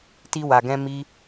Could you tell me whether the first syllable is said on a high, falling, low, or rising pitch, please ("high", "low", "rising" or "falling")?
high